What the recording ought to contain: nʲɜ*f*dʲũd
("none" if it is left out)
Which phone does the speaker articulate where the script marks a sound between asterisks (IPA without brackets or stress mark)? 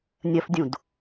f